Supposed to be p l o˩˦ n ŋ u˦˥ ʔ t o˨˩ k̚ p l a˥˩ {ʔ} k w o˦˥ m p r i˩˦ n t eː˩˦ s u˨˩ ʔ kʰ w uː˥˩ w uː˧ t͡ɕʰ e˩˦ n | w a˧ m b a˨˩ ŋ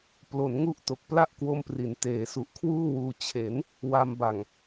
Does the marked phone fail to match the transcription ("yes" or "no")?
no